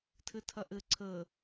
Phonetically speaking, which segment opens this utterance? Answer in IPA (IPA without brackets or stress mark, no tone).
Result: tʰ